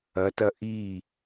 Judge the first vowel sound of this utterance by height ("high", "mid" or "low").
low